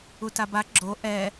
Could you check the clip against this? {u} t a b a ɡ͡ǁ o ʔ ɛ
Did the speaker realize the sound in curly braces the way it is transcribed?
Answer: yes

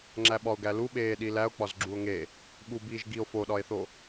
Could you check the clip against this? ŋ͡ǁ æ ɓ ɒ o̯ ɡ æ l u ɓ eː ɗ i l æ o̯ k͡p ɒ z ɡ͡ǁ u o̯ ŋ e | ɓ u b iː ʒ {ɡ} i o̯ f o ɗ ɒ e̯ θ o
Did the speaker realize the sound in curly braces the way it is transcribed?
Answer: yes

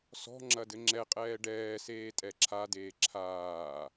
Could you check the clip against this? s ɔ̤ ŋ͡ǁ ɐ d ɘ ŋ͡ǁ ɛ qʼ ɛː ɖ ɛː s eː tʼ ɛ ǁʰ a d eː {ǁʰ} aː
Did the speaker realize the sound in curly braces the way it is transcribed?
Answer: yes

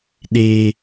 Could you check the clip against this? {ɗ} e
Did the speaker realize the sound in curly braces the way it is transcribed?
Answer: yes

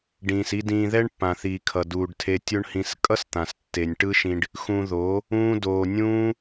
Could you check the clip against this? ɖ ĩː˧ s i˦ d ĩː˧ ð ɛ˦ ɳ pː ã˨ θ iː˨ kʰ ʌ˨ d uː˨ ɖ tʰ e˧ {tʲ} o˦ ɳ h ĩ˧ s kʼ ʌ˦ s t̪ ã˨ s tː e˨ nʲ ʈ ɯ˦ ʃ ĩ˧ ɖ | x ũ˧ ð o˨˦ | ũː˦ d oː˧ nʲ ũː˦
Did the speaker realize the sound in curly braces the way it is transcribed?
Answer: yes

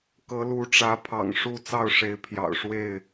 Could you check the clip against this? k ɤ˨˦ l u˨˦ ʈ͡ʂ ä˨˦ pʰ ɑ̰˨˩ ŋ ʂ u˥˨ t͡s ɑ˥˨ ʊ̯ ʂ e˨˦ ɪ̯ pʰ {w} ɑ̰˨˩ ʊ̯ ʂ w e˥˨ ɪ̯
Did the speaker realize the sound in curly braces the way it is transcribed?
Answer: no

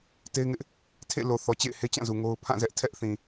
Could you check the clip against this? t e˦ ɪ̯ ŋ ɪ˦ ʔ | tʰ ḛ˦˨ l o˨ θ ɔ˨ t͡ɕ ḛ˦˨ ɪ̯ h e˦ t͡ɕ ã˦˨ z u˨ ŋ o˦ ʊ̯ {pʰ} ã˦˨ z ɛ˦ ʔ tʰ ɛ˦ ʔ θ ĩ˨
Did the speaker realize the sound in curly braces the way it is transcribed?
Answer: yes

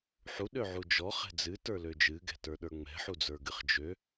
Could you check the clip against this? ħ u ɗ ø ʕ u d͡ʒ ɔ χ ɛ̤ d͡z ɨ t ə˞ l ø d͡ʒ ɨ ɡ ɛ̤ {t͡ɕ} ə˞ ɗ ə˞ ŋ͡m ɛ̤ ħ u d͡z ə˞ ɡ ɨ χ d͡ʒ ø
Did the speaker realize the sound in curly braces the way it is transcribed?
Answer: no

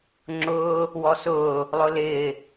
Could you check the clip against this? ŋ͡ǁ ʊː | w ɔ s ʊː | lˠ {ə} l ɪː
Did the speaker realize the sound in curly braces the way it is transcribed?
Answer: no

